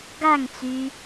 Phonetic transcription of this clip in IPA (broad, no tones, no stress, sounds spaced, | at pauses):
ɡ a ŋ t͡s yː